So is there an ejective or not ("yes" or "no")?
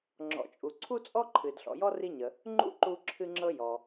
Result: yes